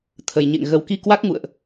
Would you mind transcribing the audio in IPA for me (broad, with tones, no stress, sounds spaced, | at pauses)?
t̪ʰ ə˨˩ j ɲ ḛ˧˨ ŋ ɣ ə˨˩ w k i˧ k w a˦˥ k̚ ŋ ṵ˧˨ ə̯ ʔ